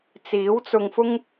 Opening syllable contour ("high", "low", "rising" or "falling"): rising